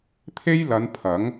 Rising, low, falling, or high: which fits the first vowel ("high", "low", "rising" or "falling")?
high